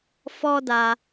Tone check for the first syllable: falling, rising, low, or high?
high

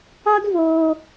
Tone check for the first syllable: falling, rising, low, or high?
high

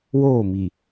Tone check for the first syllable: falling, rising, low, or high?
falling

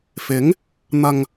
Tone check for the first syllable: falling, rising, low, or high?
rising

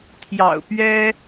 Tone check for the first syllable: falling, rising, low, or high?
low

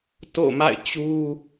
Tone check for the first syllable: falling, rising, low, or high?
falling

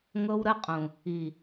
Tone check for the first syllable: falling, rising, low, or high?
high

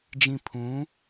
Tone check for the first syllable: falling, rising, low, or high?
low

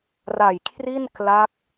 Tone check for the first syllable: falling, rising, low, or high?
low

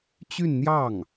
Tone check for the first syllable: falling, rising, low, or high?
falling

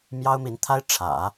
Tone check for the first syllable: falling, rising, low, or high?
high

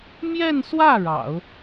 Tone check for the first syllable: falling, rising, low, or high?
falling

